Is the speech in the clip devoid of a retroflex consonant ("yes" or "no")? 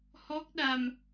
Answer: yes